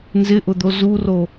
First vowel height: high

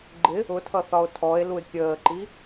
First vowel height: high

